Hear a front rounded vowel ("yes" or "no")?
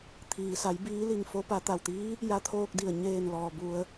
no